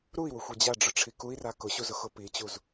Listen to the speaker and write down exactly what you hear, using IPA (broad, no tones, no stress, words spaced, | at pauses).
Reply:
ɾui̯wʊxʷi d͡ʑaɖ͡ʐʊʈ͡ʂʰi kui̯ra kʊɕuzʊxʊ pit͡ɕuz